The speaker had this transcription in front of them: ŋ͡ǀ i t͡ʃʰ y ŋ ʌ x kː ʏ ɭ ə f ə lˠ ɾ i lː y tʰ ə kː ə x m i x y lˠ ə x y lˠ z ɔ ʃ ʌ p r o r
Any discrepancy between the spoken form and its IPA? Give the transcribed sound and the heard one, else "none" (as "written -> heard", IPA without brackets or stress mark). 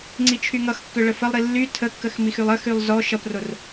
none